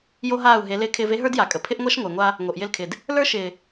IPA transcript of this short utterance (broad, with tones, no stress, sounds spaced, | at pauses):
j o˦ ɦ aː˦˨ u̯ ɦ e˨˦ l ɪː˦ kʰ ɪː˦ v e˦ ɦ ə˞˦ d j a˨ kʼ ə˨ pʰ ɪ˦ ʔ ŋʷ a˦ ʃ ŋʷ ɪː˨ ŋʷ a˦ | ŋ o˨ ʔ j ɪ˦ l kʰ ɪ˨ d | l ə˞˦ ʃ ɪː˨